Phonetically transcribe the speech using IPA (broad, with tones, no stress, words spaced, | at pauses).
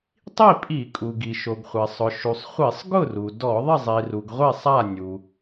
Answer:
tˤi˥˨pʼi˧˩˧kʼu˩ ɡi˩ʃo˩ɡχʷɛ˩ sˤʊ˩ʃu˩sˤχʷi˧˩˧sˤ ɡʊ˥˨ru˩ dɔ˧˩˧ðˤɪ˥˨zˤi˩ru˩ɡ ʁʷe˥˨sˤa˥˨ nʲu˩